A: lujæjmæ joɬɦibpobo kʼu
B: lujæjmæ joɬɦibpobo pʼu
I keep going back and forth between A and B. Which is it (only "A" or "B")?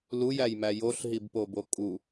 A